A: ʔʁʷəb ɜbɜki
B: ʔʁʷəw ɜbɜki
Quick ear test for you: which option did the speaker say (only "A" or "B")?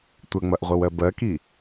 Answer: B